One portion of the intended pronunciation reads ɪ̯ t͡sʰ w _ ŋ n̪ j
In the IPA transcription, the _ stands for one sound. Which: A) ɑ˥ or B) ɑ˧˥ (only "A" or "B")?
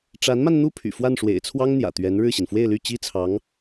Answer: A